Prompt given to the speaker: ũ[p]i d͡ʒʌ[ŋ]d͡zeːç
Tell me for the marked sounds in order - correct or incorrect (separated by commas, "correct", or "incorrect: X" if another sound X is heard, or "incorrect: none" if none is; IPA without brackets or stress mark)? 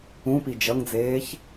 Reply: correct, correct